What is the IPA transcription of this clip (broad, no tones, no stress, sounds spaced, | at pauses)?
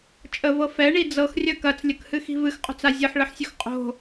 t͡ʃʼ ə v ɤ f ɛ ɳ i d͡z ɤ x rʲ ɐ k ɐ t͡s lʲ ə k h ɨ x i̤ v ɨ x qʼ o̤ t͡s a zʲ ɤ ħ ɭ ə ħ sʲ ɵ x qʼ o̤